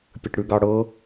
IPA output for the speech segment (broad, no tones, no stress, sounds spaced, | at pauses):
pʲ ə ʈ ɽ ʉ ɡ ɑ ɽ ɤ